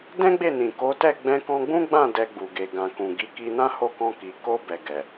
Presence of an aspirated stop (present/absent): absent